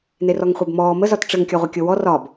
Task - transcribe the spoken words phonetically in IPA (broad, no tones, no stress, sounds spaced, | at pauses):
n e r ɔ ŋ χʷ e b m ɔː m ə z ɒ t ʈ͡ʂ ɘ ŋ kʲ ɒ ʁʷ ɐ kʲ o w ɔ r ɒ b